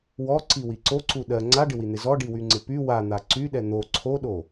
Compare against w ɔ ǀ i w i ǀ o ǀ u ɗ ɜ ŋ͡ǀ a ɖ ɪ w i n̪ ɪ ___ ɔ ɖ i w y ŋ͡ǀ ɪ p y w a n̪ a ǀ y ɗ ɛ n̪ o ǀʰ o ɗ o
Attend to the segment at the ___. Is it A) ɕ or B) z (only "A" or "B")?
B